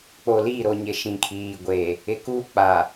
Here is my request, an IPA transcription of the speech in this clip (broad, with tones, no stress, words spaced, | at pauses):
k͡po˨li˦˨ɾo˨ɲɪ˨ ʃĩ˨kʰiː˨ɡʷe˨ | ɪ˨kuː˦k͡pa˨